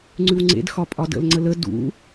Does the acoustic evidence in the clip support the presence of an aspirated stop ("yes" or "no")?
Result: no